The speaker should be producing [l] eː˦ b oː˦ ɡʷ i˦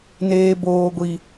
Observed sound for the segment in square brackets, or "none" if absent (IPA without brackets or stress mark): n